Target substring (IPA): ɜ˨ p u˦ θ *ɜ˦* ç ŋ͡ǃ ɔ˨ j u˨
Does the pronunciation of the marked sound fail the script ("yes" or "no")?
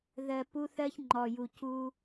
no